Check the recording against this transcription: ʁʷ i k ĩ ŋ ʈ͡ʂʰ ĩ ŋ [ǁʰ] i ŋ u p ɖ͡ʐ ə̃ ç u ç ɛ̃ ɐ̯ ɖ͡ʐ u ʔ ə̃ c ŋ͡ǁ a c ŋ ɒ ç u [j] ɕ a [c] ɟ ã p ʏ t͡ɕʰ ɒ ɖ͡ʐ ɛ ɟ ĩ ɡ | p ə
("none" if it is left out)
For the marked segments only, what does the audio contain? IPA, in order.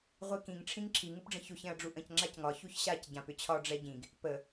ǁʰ, ç, c

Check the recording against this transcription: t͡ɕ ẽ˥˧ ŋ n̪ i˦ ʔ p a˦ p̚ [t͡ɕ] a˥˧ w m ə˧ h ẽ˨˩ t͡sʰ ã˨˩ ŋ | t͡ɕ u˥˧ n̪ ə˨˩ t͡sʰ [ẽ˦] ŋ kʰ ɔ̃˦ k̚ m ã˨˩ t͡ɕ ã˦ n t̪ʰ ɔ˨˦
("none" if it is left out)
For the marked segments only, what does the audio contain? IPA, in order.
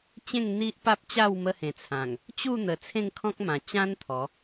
t͡ɕ, ẽ˥˧

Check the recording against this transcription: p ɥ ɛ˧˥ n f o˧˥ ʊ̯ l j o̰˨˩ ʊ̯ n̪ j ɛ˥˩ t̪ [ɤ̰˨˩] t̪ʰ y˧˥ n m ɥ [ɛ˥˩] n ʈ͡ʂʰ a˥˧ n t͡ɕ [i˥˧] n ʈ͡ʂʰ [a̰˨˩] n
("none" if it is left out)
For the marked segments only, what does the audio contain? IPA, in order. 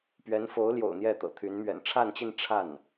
ɤ̰˨˩, ɛ̰˨˩, i˥˧, a˥˩

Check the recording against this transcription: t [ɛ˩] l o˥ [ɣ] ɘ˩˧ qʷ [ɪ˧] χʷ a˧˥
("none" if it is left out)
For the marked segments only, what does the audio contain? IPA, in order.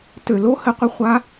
ø˩, h, ɪ˧

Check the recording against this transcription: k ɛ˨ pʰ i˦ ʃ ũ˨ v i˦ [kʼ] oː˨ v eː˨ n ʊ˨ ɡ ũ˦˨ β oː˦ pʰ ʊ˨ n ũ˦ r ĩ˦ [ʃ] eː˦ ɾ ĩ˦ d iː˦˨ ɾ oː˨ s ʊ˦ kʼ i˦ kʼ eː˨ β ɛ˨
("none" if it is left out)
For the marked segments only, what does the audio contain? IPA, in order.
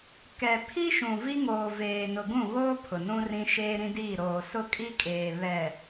ŋ, ʃ

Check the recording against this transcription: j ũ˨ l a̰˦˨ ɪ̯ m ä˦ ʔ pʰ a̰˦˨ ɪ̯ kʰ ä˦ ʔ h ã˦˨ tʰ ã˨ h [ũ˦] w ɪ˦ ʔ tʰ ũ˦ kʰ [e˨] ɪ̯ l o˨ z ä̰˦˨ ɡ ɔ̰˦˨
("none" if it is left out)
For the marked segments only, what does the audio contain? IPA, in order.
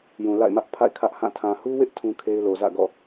u˦, e˦

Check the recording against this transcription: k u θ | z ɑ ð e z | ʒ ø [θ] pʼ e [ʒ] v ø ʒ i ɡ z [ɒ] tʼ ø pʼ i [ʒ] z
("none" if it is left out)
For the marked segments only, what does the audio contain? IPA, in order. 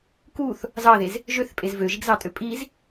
θ, z, ɑ, none

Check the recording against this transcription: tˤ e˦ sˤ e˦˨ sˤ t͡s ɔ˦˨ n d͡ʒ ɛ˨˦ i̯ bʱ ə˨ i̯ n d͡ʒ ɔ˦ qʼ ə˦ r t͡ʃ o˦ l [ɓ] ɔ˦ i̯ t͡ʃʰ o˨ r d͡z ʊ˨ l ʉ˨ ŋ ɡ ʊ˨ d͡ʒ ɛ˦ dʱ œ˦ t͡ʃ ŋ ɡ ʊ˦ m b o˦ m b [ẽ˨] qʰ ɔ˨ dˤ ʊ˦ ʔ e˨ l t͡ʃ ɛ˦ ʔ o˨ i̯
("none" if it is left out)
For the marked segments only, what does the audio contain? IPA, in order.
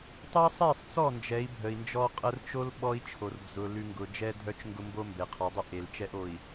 ɓ, e˨

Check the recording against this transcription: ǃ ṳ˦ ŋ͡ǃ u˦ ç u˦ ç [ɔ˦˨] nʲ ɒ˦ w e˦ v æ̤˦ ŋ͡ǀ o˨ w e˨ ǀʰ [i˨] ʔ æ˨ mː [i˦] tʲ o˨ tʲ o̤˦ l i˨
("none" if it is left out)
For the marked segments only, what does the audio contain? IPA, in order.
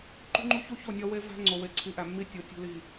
o˦˨, i˨˦, i˦

